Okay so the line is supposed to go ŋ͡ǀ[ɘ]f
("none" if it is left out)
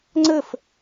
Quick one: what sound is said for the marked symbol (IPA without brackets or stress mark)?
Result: ɘ